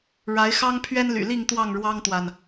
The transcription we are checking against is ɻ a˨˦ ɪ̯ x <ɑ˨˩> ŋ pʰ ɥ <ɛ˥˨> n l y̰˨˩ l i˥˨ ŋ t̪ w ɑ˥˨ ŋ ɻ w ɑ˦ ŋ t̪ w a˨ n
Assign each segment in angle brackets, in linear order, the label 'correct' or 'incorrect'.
incorrect, incorrect

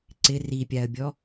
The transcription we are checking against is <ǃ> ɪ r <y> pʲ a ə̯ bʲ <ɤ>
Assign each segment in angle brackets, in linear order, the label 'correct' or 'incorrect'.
incorrect, incorrect, incorrect

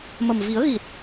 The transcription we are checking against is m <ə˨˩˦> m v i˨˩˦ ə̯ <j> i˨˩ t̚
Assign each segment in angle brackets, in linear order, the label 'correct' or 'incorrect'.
incorrect, incorrect

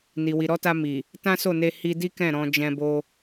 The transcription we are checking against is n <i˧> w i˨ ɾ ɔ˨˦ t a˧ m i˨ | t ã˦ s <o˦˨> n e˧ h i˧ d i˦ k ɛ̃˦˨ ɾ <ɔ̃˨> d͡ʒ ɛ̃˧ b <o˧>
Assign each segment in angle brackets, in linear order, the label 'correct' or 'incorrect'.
incorrect, correct, incorrect, correct

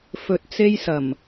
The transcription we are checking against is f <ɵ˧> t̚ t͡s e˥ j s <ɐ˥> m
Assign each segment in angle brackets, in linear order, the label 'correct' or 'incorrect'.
correct, incorrect

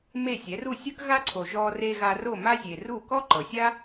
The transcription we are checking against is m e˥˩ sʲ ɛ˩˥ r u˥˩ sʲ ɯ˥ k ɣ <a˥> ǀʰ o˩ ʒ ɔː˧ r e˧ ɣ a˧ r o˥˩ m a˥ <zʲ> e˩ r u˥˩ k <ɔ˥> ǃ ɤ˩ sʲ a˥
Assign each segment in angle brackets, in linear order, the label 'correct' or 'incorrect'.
correct, correct, correct

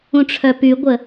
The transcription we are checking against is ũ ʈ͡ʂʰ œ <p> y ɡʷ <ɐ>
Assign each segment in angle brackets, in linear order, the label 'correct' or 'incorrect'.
correct, incorrect

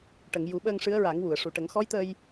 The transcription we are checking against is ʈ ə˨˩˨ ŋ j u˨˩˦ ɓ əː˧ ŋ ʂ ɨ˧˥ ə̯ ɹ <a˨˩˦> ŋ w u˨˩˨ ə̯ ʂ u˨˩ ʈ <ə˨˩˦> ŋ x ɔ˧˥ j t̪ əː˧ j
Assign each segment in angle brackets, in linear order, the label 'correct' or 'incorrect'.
correct, correct

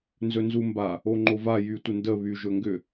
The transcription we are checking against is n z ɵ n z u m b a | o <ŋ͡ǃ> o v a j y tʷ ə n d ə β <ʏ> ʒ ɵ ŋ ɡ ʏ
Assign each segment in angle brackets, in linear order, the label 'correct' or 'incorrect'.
correct, incorrect

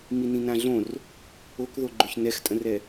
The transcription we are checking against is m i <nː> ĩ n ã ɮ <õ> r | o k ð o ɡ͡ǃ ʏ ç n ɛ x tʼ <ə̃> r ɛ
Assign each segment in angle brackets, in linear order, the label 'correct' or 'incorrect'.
incorrect, correct, correct

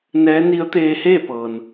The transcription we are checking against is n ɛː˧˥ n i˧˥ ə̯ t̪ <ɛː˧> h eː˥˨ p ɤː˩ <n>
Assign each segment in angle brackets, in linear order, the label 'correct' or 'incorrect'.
incorrect, correct

